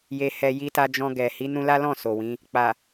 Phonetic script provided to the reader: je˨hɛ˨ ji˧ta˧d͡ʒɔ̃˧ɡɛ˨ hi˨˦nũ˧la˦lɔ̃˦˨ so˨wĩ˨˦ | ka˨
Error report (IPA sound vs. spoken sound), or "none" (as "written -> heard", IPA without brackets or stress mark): k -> k͡p